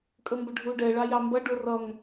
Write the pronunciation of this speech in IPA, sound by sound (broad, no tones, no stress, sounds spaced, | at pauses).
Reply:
kʼ ə m b ə ɖʱ u ɖ ɛ ɭ ɑ j ɑ m b ʌ ɖ ʊ r ʌ ŋ